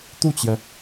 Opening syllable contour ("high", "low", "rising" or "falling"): falling